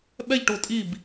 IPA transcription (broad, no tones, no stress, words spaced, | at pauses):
ɓɛʎʈʊː tʼib